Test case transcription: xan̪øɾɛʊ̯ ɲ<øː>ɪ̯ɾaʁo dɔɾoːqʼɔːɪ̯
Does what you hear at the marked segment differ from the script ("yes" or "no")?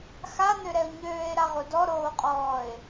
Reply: no